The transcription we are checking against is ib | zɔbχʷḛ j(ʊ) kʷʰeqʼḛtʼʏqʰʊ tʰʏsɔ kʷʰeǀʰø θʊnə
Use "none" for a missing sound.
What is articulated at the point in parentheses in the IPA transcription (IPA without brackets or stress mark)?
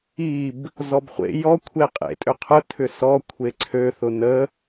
ɔ